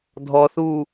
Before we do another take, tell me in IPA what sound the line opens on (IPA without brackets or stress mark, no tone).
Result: dʱ